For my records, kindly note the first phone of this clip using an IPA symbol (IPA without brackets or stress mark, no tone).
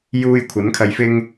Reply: j